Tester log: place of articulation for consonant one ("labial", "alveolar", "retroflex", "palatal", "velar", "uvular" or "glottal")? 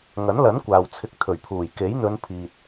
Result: velar